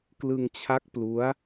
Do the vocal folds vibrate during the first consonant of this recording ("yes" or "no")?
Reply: no